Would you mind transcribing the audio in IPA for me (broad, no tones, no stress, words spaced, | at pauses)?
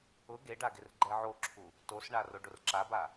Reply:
ʊ ɡeɖa ɡɪrɡ͡ǃɛʕoǁʰu | tosɳa roɖʊrǁaba